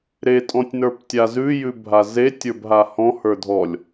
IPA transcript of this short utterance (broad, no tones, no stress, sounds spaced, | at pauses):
ɾ e tʼ ɔ̃ tʲ n ə˞ p tʲ a z ʉ j ʉ bʱ a z e tʲ ə˞ b ɦ a h ɔ̃ h ə˞ dʱ ɔ lʲ